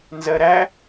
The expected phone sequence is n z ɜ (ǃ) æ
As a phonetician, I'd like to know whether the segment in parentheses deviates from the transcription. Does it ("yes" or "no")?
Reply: yes